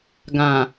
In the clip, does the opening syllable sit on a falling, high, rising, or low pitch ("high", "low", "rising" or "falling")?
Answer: low